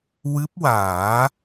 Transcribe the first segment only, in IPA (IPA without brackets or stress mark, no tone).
w